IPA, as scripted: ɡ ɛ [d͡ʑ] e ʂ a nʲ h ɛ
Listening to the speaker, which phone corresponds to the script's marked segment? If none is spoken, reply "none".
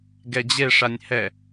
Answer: d͡ʑ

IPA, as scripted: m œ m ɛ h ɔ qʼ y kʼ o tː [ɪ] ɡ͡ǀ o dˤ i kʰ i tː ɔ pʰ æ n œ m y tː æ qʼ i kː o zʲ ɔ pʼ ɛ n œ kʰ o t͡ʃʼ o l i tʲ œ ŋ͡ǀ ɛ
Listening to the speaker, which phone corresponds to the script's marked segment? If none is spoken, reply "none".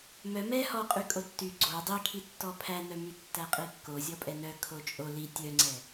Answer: y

